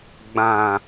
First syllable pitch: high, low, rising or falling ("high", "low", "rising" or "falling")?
low